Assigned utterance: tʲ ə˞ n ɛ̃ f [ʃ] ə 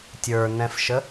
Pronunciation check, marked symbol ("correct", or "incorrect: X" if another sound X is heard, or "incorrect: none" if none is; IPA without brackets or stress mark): correct